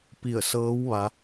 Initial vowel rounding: unrounded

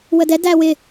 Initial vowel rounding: unrounded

